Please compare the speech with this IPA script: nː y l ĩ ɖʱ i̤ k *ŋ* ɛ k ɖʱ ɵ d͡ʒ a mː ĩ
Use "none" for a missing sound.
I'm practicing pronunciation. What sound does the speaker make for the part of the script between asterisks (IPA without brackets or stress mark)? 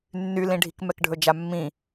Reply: m